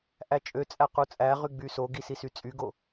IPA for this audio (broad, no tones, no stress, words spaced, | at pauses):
ʔæt͡ʃʼøt͡sʼæ qut͡sʼæʁy ɡ͡bysoɡi sisyt͡sʼyɡo